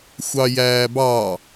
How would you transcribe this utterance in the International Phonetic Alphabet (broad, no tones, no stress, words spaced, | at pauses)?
xʷɑjæːbɑ